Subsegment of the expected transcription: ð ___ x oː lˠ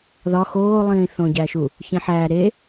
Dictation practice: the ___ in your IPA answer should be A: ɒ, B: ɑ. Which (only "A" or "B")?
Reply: A